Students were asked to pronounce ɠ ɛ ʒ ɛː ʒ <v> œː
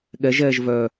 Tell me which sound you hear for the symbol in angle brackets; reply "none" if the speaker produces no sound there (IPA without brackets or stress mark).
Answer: v